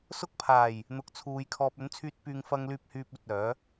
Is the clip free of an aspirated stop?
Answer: no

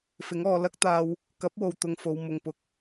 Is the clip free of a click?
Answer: yes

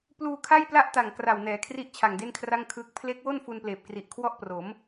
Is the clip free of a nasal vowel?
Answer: yes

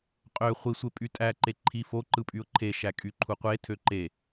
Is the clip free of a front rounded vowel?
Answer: no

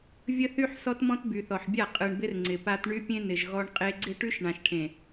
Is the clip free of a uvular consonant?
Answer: no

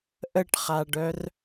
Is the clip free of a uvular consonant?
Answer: no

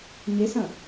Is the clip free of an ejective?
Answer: yes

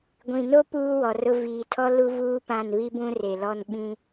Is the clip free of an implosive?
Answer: no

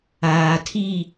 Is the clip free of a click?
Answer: yes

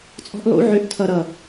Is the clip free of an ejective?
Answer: no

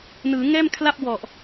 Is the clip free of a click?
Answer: yes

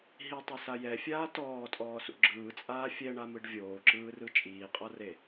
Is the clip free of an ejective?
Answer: no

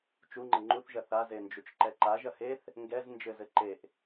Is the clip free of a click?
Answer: no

